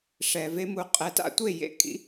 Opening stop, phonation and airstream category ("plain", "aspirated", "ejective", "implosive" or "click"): ejective